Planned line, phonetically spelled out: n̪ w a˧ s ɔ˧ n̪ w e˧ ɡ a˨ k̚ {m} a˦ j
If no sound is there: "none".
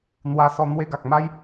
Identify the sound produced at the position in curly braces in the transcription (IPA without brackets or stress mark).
m